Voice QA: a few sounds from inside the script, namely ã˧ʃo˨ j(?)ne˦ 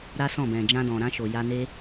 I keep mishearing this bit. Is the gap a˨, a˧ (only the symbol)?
a˧